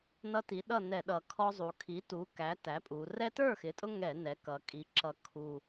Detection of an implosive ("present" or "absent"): present